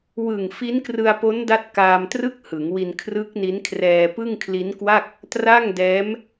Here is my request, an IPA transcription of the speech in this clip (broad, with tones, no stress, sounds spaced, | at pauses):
w ɯ˨˩ ŋ f i˦˥ n k r ɯ˧ a̯ p o˦˥ n d a˦˥ t̚ k aː˧ m t r ɯ˥˩ k̚ h ɯ˩˦ ŋ w i˧ n kʰ r ɯ˦˥ k̚ n i˦˥ n kʰ r ɛː˧ p ɯ˥˩ ŋ kʰ l i˦˥ n k w a˥˩ k̚ | t r a˥˩ ŋ d ɛː˦˥ m